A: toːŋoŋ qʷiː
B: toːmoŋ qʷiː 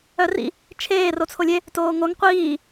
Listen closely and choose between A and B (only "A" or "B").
A